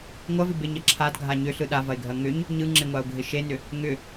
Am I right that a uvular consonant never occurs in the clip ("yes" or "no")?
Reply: yes